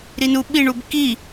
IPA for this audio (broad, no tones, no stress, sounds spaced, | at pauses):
ɾ i n u ɓ i ɳ u b k i